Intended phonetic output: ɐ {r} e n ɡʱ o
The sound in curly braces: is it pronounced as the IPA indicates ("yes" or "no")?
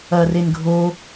yes